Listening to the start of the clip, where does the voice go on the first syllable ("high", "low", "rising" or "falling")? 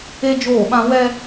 high